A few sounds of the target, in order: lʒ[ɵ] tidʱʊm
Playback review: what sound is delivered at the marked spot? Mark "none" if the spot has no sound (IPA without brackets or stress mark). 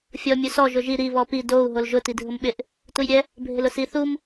ʊ